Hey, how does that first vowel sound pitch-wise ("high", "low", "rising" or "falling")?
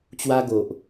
high